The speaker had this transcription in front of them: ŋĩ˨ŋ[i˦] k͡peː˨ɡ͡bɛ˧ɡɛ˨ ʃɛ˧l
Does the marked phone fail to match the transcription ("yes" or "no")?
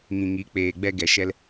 yes